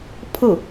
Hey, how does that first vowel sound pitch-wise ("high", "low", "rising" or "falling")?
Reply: falling